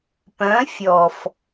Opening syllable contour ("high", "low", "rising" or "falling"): rising